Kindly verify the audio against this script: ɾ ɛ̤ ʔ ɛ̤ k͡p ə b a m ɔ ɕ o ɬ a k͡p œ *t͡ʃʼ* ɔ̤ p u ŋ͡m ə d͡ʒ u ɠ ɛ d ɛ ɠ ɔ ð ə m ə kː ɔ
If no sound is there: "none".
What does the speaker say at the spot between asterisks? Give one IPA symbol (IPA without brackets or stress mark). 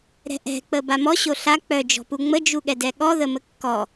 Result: d͡ʒ